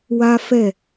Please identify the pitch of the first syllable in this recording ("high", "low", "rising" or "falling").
high